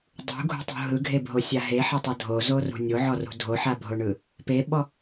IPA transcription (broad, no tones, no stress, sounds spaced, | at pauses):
dˤ ṳ ɡʱ ṳ tˤ ṳ ɦ ɯ ɡʱ e bʱ o sʲ a ɦ e ħ ɤ tˤ ɤ dʱ o z o r ṳ nʲ o ʕ ɔ r ṳ dʱ o ħ a bʱ o ɳ ɯ | p e ɓ ɔ